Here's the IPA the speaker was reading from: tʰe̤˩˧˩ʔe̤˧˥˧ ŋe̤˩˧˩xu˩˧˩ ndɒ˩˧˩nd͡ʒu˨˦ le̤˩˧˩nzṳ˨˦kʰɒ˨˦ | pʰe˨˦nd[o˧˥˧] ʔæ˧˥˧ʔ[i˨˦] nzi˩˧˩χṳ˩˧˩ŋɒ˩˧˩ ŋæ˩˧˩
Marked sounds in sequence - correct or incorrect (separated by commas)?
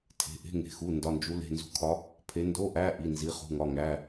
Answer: correct, incorrect